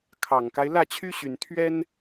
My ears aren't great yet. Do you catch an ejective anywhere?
no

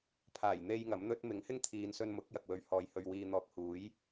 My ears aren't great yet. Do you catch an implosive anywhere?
no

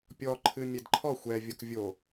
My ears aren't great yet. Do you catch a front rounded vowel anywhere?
no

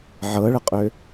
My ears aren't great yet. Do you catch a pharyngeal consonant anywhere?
yes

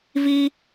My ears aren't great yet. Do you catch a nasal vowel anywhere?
no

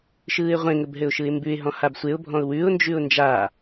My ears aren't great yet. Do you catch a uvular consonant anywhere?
yes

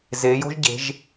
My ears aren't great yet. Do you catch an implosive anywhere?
no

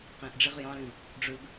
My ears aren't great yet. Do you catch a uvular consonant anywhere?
yes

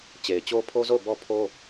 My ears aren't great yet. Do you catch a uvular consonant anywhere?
no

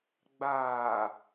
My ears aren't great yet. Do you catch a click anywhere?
no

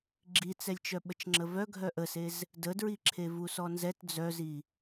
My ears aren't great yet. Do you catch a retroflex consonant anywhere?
no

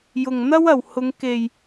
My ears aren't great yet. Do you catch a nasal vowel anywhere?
no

